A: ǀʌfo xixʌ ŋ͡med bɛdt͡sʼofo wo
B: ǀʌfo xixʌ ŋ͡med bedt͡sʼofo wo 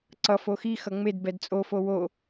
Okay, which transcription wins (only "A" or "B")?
A